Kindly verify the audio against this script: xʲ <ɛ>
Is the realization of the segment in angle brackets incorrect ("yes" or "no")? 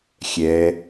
no